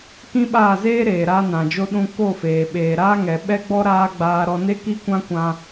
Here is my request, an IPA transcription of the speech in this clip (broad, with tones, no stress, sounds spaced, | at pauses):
k ĩ˦ ɓ aː˦˨ z eː˦ ɾ eː˨ ɾ a˧ n ã˨ d͡ʒ o˧ ɗ ũ˧ k o˦˨ f eː˨ ɓ eː˨ ɾ aː˦ ŋ ɛ˨ ɓ ɛ˦ ɡ͡b ɔ˦ ɾ aː˦ ɡ͡b aː˧ ɾ ɔ˧ n e˦ k i˦ kʷ ã˦ kʷ ã˧